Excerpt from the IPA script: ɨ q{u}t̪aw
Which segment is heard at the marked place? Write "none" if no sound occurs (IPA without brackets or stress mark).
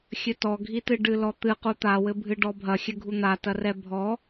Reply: u